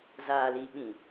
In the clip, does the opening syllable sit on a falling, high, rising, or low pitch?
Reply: low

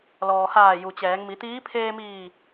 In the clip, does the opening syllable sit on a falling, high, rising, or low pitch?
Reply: low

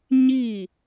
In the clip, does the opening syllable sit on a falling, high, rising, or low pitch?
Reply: falling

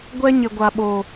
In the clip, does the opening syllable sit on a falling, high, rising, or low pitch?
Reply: high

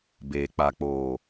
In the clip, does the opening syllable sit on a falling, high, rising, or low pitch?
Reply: low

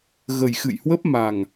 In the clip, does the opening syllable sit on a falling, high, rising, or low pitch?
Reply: low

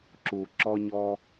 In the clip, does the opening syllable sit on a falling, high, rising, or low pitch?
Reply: low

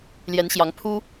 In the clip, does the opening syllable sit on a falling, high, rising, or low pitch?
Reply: rising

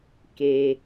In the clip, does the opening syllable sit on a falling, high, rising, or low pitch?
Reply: low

